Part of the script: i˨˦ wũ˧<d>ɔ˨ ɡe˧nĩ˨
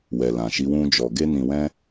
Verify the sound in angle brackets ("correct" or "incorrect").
incorrect